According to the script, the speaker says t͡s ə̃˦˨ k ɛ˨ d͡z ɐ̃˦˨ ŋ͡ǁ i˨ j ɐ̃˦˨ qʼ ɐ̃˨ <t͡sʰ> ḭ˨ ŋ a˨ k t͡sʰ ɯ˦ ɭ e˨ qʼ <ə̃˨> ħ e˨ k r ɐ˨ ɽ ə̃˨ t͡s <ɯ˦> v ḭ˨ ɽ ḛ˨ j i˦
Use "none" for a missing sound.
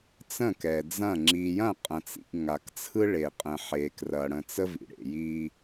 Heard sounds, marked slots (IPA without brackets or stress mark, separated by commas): t͡s, ə̃˨, ə˦